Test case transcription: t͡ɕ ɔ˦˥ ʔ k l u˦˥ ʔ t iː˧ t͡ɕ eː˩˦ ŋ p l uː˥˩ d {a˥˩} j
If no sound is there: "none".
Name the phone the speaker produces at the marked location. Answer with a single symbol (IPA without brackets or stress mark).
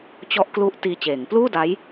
a˦˥